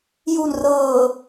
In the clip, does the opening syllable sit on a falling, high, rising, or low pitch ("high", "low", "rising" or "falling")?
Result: low